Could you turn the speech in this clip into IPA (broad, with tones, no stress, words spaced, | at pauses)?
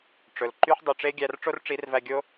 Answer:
ʈ͡ʂɵ˨lǃy˦ħ dˤy˨ʈ͡ʂe˦ɡʲæ˧r ʈ͡ʂo˦rʈ͡ʂi˨˦rvæ˧ ɡʲo˦